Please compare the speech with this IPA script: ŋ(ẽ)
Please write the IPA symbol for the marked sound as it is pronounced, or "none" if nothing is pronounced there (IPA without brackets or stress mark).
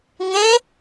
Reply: ẽ